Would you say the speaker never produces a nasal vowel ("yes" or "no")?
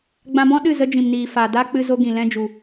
no